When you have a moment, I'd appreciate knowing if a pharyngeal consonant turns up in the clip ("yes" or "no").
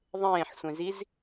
yes